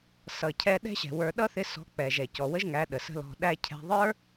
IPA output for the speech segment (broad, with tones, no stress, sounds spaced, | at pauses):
s ʌ˨ cʰ ɛ˧ ɗ ɛ̤˦ ɕ ɛ̤˨ w ə˞˧ ɗ ʌ˦ θ ɪ˧ s ɔ̤˨˦ k͡p ɛ˨ ʒ ɛ˨ c ɔ˨ w ə˦ ʒ ŋ æ˨˦ ɗ ə˨ s ə̤˦ l ɔ̤˧ ɗ æ˧ cʰ ɛ̤˧ ðˤ ə˞˦